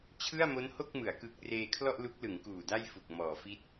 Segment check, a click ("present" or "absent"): absent